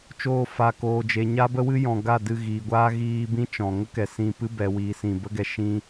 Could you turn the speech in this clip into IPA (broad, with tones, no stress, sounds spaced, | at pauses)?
t͡ʃ oː˧ f a˨ k oː˨ d͡ʒ e˨ ɲ a˦ b ə˦ w ɨ˦ j ɔ̃˨ ɡ a˦˨ d ɨ˧ ɣ iː˨ ɡʷ aː˦ ɣ iː˧ b ĩ˦ t͡ʃ ɔ̃˨ ŋ ə˦ k ɛ˨ s ĩ˧ p ɨ˦ b ɛ˨ w iː˨ s ĩ˨ b ə˦ ɡ ɛ˧ ʃ ĩ˦